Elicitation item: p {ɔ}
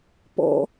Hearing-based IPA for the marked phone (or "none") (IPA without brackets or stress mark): ɔ̰